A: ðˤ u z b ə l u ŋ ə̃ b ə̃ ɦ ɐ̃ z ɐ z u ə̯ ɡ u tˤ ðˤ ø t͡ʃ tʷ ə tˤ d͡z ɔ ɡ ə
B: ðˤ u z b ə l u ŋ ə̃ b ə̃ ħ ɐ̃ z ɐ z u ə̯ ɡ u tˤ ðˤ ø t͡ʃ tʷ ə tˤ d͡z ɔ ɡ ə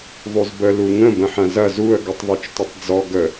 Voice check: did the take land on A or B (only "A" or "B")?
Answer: B